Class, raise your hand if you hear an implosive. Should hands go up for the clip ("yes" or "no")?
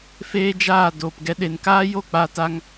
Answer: yes